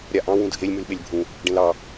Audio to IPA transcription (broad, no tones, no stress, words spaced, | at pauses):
ɾʲaʔɑ̃ wũdʱelʲ mʉlɓelʲbʱũ | ɖẽlɑ